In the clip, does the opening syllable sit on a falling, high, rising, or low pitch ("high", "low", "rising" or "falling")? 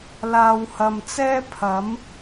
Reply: low